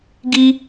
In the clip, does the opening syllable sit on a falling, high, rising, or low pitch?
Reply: high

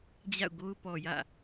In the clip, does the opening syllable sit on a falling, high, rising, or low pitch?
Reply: falling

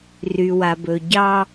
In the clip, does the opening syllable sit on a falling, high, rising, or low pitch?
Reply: low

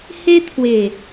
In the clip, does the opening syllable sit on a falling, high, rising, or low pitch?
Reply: high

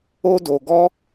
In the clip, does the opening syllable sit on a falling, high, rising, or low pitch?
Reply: high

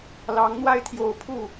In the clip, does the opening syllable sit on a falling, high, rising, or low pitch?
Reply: rising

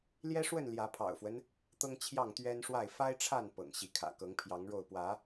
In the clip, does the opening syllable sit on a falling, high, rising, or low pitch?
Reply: high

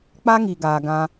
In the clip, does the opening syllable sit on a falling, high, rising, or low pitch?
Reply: high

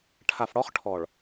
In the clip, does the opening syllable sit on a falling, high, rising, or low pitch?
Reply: low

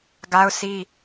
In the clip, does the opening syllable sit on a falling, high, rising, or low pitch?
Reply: high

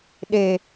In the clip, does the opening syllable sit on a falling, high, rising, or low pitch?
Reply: low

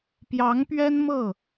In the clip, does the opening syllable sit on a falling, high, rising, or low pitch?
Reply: rising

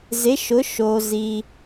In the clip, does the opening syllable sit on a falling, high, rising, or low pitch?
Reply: rising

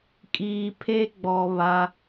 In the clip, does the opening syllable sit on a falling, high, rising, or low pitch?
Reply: low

